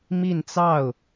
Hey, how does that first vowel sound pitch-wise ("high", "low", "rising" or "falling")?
falling